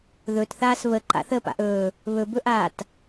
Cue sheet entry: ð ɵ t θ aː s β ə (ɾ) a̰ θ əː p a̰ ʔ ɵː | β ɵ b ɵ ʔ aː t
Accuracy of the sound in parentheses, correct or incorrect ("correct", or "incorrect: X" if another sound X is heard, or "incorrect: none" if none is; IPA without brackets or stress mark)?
incorrect: ǃ